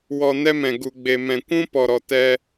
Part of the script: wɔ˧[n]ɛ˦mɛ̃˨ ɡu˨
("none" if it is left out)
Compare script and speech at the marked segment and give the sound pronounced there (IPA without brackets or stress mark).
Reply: n